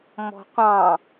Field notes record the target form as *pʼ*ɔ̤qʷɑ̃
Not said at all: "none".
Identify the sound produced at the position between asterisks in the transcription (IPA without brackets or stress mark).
m